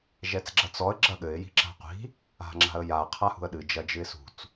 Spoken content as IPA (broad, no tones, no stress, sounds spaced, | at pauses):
ʒ ɛ t͡s ɡ͡ǁ ɐ t͡s ɔ ə̯ ɡ͡ǁ ɐ ɠ ɘ ɪ̯ j i̤ ǁ a̤ qʷ i̤ | a̤ ŋ͡ǁ a̤ ə̯ j a qʰ a h ṳ ə̯ ɗ ɨ d͡ʒ ɐ d͡ʒ ɨ ɪ̯ s ṳ t͡s